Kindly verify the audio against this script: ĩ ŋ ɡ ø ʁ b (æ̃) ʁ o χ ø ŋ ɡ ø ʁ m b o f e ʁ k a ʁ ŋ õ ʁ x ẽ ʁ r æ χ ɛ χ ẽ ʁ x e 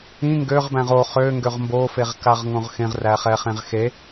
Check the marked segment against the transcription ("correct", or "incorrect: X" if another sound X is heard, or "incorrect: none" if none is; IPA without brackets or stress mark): correct